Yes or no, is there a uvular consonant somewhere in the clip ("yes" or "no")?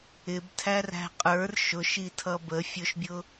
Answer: yes